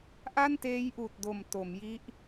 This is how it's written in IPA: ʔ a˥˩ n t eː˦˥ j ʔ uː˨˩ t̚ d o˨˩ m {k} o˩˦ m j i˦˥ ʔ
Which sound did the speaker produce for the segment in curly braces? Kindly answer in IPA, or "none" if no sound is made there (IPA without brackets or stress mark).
t